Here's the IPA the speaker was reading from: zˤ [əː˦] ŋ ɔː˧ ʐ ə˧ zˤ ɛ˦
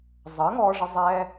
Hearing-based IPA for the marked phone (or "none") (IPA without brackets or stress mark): əː˨˦